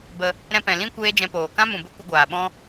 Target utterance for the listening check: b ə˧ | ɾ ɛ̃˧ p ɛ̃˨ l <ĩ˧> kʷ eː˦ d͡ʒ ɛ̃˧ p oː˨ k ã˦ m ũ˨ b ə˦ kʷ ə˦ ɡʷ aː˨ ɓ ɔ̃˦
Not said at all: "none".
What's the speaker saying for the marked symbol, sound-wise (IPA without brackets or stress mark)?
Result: ĩ˦